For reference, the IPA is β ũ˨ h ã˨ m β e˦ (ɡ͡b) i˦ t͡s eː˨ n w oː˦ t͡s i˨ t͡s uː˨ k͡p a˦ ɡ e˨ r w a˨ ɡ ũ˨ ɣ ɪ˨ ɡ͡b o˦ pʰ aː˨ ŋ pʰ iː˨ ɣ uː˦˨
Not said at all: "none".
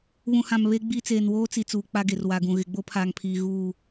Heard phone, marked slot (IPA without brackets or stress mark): ɡ͡b